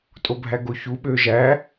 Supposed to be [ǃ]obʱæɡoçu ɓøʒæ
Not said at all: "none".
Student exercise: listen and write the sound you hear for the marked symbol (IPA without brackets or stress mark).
tʼ